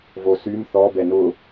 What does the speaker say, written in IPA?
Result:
vosym θɔ bɛnʊ

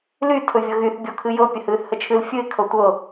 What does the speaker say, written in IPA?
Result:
ly tʰɵvʲɤɣyθ bʲɔkʰɨjɤ pʲəhɨːθhət͡ʃʰɨl fʲɨɪ̯ kʰɤtʷɤ

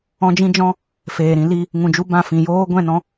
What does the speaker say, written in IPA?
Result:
ɔ̃˦d͡ʒĩ˦d͡ʒɔ̃˦ | feː˨ɾĩ˧ li˧ | ŋũ˨d͡ʒu˧ bã˦˨fĩ˨joː˦ ɡʷɛ̃˦˨nɔ̃˧

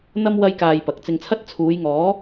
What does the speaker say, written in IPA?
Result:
n̪ɐ˥m wɐ˥jkaː˧jpɐ˨k̚ t͡sɪ˧ŋt͡sʰɐ˥t̚ t͡sʰuː˨˧jŋɔː˨˥

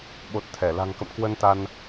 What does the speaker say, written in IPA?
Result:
ɓo˨˩t̚ t̪ʰɛ˧˩ la̤˨˩ŋkə̰˧˨m kwə˧nt̪a˧n

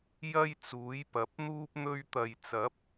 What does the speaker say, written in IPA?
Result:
jɐ˥jt͡suː˨˥jpɐ˨˥p̚n̪uː˥p̚ n̪ɵ˧ɥt̪ɐ˨jt͡sɐ˨˥p̚

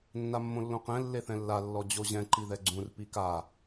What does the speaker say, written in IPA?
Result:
nːamːõlːõqɛ̃ lːeθɛ̃lːa lːɔd͡ʑoʑɛ̃ ǃiðɛɡ͡ǀũr pika

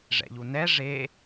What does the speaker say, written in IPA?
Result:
ʐɛ̰ʎunɛ ʐe

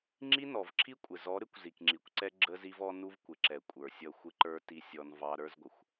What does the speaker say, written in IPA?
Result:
ŋ͡ǁi˦nɔ˨vǁʰi˦kʷʼɪ˨ zɔ˨˦ɾɪ˦kʷ zi˨kŋ͡ǁi˨kʷǀɛ˦ ɡ͡ǁə˦zi˦v ɔ˦ nu˦vkʷɪ˨ǁɛ˨ kʷʼə˞˨sʲʌ˦˨ xʷɪ˦ǃə˞˦ ti˦sʲɔ˦nvɑ˦ ɾə˞˦zɡʷə˨xʷ

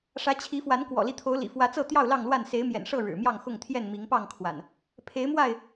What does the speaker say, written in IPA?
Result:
ʂä˨˦ t͡ɕʰi˨˦fwa˨˦n kwɔ̰˨˩li˦t̪ʰo˨˦ʊ̯ lḭ˨˩fwä˨˦t͡sɤ˥˨ t̪jɑ˥˨ʊ̯lɑ˥˨ŋlwa˥˨n se˨˦ɪ̯mjɛ̰˨˩nʂɤ˥˨ ɻɻ̩˨˩mjɑ˥˨ŋxʊ˥˨ŋt̪ʰjɛ˥˨n mi˨˦ŋpɑ˥˨ŋkʰwa̰˨˩n | pʰe˨˦ɪ̯mwa˥˨ɪ̯

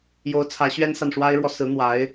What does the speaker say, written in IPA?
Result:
jo˧˥ʊ̯t͡sʰä˧˥ɕɥɛ˥nsa˨n ʂwa˥ɪ̯ɻwɔ˨ sɹ̩˧˥ n̪wa˧˥ɪ̯

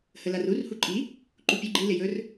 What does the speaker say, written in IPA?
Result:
həlarur huǃʼi | ǃupʲɵ ɡ͡ǃi lɪjɵr

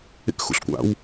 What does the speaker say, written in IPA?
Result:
ḛkxṵɬkʷa̰w

